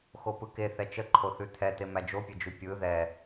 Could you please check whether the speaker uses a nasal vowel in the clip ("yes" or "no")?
no